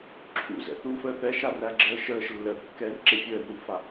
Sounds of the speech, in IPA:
ǁʰ ṵ z ɛ̰ θ u f əː θ ɛ ʃ a r æ ɡ͡ǁ əː ʃ əː ʃ lː əː θ kː ɛː r ǁ e fʲ əː r u v f a

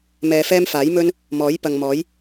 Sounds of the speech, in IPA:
m ɛː˧ f ɛː˥ m f aː˨˥ j m ɵ˥ n | m ɔː˨˥ j p ɐ˨ ŋ m ɔː˨˥ j

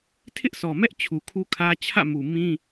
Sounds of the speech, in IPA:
tʰ ɪ˦ ʔ s ɔ˨ m ɛ˦ ʔ t͡ɕʰ u˨ kʰ u˦ kʰ ä˦ t͡ɕʰ ä̰˦˨ m u˨ m ĩ˦

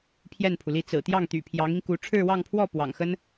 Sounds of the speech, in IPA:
pʰ j ɛ˥˩ n pʰ u˩ l i˥˩ t͡s ɹ̩˨˩ t̪ j ɑ˥˩ ŋ t̪ y̰˨˩ pʰ j ɑ˧˥ ŋ i˧ ŋ k u˧˥ ʈ͡ʂʰ ɻ̩˥˧ w ɑ˥˧ ŋ pʰ w ɔ˥˩ p w ɑ̰˨˩ ŋ x ə˥ n

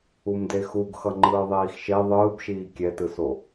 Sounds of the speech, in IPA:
u m d e x u ɡ x ʌ ŋ͡ǃ ɯː ðˤ iː x ʃ e ðˤ ɯː b ʃ iː kʲ ɛ t ɯ s o

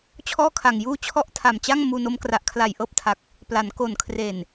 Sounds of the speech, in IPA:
t͡ɕʰ ɔː˥˩ kʰ a˨˩ ŋ j uː˥˩ t͡ɕʰ ɔ˥˩ ʔ tʰ a˨˩ m t͡ɕ a˥˩ ŋ m uː˧ n o˦˥ m k r a˨˩ ʔ kʰ l a˨˩ j ʔ ɤː˦˥ p̚ tʰ a˨˩ k̚ | p l a˩˦ n k o˨˩ n kʰ r e˨˩ n

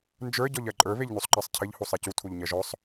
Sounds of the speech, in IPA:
n d͡ʒ ə˞ ɟ ɔ ʎ ɜ ǃʼ ə˞ β e ʎ n u sˤ ǃ ɜ sˤ cʰ ɘ ʎ h u sˤ ɛ c u tʰ u ʎ ɲ ɜ ʒ ɔ sˤ

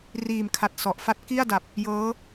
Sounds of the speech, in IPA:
r iː˨˩ m kʰ a˨˩ t̚ s ɔ˨˩ ʔ f a˥˩ t̚ k i˥˩ a̯ d a˨˩ p̚ | j ɤː˦˥

